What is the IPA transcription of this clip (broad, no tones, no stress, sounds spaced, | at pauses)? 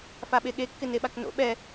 f a ɓ e ɠ e kː ɪ n e ɓ a k n o̰ ɓ ɛ